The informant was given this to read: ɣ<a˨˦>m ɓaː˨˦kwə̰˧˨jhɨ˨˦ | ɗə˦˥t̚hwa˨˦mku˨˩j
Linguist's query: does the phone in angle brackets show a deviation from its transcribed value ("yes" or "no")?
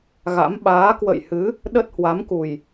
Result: yes